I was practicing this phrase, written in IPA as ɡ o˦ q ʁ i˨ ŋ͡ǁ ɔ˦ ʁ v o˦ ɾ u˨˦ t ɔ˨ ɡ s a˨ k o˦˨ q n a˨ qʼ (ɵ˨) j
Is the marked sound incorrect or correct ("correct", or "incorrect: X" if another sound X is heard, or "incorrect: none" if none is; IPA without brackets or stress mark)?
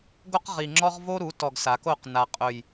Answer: correct